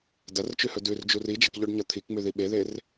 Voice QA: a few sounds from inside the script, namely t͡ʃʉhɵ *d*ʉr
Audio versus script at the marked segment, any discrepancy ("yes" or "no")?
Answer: no